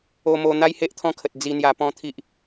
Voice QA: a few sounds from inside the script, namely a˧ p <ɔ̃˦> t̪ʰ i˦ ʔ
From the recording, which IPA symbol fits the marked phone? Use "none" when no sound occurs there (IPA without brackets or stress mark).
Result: ɔ̃˦